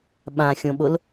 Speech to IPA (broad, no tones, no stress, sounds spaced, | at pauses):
ɓ ã xʲ õ ɓ o l